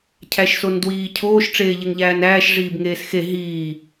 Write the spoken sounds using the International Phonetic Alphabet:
cʰ æ ʃ s o n d w iː cʰ oː ʃ ʈ͡ʂ eː ʎ e ŋ ʎ æː n æː ʃ ʐ iː b ŋ eː s x e ɦ iː

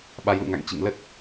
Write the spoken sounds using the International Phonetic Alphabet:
ɓ a˨˦ j l ṵ˧˨ ŋ a̰˧˨ ŋ t͡ɕ ḭ˧˨ ŋ l ə˦˥ t̚

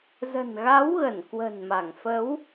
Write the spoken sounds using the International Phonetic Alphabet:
z ə̤˨˩ n ɣ a˨˦ w ɣ ə˧˩ n k w ə̤˨˩ n m a˧˩ ŋ f ə˨˦ w

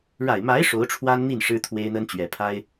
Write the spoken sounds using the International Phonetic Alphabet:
ɻ a˨˩ ɪ̯ m a˧˥ ɪ̯ ʂ o˧˥ ʊ̯ ʈ͡ʂʰ w a˥ n n̪ i˥˩ n ʂ ɻ̩˥ t̪ʰ w e˥ ɪ̯ n̪ ə˥ n t͡ɕ ɥ ɛ˨˩ pʰ a˥ ɪ̯

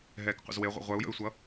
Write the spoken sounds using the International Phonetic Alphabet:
ɦ ɛː k qʷ ə̰ z w e ʁʷ ə̰ ʁʷ œ u̯ j ə̰ y̯ sʷ ʌ

